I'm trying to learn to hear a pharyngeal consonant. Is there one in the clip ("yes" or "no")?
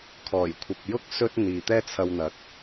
no